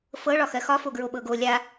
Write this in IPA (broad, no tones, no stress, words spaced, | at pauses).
fɤ ɭɒxɜxɒfo ɡɹoɓɤɡo lʲa